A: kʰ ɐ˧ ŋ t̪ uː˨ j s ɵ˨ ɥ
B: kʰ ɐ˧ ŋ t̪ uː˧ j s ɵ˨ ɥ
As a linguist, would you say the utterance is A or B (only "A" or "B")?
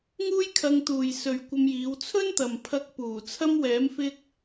A